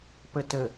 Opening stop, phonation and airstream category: plain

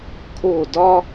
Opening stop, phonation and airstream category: aspirated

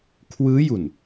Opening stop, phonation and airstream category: aspirated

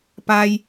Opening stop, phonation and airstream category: plain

